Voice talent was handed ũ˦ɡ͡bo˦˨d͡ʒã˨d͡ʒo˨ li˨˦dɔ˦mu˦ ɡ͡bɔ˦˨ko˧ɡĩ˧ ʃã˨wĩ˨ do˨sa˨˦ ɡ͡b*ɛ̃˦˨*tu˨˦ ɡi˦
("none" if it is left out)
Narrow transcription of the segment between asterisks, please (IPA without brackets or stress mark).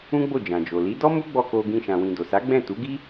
ɛ̃˦˨